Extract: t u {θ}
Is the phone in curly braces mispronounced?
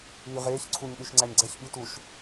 yes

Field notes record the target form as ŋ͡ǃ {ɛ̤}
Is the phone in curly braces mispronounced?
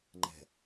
no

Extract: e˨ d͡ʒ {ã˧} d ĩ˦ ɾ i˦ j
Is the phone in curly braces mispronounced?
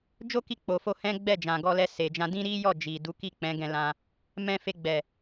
no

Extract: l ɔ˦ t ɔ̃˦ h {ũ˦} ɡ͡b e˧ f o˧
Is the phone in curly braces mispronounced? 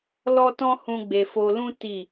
no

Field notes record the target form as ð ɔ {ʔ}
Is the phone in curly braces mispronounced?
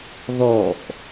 no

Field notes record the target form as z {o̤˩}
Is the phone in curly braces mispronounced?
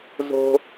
no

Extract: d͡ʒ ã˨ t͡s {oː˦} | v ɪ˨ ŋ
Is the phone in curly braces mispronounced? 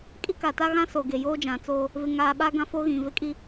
no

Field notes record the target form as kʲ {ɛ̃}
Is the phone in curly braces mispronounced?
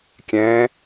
no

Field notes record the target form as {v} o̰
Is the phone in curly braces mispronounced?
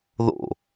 yes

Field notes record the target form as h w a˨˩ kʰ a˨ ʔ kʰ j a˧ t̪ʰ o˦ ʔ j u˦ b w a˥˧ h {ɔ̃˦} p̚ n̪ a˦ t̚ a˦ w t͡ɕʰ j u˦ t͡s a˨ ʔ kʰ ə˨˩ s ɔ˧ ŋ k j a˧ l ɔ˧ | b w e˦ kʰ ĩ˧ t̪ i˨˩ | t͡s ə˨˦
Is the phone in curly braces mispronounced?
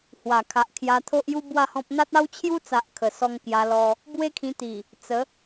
no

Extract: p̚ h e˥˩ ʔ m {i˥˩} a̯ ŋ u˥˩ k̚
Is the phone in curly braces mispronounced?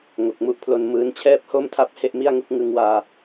no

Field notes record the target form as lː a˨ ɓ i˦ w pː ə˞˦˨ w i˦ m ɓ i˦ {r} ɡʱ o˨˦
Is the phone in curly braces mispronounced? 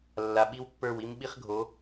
yes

